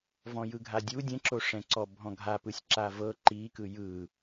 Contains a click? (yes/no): yes